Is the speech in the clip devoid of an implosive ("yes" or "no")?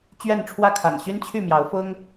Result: yes